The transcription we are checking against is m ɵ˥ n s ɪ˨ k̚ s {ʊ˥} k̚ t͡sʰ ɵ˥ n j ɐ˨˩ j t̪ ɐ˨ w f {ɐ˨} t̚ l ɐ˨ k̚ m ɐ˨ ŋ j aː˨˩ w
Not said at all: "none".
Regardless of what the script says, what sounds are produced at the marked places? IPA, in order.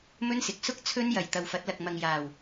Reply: ʊ˥, ɐ˨˥

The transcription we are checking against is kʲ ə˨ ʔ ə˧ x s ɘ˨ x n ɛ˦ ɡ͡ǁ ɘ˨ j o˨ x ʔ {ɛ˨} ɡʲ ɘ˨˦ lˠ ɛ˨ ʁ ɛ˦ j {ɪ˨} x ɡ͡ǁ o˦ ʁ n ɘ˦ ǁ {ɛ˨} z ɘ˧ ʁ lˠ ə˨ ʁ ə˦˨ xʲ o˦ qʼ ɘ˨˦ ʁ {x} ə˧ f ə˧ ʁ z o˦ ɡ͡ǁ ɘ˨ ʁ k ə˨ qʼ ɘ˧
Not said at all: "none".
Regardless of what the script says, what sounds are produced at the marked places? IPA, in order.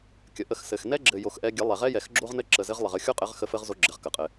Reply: ɛ˧, ɛ˨, ə˨, x

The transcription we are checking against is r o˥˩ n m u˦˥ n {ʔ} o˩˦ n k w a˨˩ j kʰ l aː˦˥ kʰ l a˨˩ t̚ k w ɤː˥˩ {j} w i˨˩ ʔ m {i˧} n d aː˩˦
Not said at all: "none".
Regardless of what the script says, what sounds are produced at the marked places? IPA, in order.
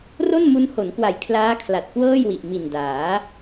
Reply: h, j, i˨˩

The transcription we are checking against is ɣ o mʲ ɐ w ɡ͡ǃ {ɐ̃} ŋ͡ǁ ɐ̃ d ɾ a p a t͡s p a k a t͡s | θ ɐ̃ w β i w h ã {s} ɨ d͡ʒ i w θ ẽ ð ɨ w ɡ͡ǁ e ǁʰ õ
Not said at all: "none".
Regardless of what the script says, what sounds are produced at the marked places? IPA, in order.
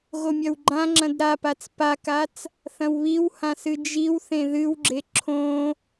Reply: ã, s

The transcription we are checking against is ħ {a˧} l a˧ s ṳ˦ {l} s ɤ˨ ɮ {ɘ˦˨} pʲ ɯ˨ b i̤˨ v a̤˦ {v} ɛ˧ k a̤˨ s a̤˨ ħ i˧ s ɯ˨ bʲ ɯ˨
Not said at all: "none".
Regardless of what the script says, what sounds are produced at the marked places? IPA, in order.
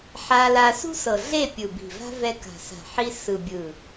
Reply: a˧, none, e˦˨, v

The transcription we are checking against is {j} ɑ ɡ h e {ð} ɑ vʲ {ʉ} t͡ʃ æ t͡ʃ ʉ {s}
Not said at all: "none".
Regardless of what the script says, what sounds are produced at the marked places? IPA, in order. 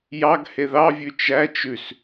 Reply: j, ð, ʉ, s

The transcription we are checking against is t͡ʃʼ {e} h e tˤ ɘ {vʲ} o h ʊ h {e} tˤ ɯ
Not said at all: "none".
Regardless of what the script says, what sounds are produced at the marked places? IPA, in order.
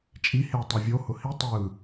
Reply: i, vʲ, i

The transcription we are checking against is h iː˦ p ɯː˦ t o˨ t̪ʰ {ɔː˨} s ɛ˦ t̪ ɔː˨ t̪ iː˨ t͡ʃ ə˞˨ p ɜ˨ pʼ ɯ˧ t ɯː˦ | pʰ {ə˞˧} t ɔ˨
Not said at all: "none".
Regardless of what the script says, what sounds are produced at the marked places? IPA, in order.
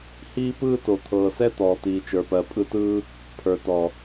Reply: ɤː˨, ə˞˨

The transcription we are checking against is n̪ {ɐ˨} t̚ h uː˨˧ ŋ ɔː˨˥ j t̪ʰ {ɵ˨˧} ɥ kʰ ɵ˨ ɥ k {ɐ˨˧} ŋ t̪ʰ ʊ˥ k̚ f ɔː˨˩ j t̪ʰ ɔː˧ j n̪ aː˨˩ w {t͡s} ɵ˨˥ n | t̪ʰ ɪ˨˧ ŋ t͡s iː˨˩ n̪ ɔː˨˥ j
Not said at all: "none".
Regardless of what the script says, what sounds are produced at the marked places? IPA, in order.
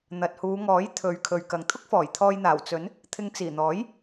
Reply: ɐ˨, ɵ˨˧, ɐ˨, t͡s

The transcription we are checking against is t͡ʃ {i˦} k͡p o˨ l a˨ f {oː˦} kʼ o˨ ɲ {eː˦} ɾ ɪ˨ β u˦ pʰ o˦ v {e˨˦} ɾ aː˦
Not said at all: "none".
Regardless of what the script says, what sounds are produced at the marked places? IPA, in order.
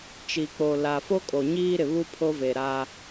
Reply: i˨, o˦, iː˦, e˨

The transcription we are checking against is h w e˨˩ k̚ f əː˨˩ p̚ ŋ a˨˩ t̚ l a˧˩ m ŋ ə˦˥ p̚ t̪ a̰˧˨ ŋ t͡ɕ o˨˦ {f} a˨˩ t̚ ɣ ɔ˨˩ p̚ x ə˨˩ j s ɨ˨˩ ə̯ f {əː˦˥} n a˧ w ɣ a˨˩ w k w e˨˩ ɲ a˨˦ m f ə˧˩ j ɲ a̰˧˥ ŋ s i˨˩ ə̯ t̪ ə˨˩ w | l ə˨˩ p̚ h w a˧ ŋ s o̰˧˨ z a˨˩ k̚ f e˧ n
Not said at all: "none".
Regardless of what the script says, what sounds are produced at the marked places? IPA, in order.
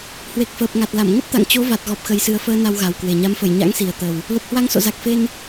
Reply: v, əː˧

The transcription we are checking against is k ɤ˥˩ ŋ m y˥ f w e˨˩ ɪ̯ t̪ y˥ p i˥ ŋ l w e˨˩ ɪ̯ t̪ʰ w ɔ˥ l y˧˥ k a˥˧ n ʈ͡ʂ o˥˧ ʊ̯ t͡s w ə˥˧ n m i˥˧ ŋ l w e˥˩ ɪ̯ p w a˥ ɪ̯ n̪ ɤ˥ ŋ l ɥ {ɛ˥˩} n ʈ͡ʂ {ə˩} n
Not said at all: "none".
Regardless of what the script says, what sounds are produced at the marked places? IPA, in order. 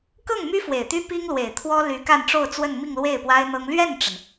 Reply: ɛ˥˩, ə˩

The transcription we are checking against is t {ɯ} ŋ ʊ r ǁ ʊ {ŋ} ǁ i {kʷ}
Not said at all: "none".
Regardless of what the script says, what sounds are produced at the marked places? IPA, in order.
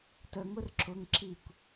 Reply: ə, ŋ, kʷ

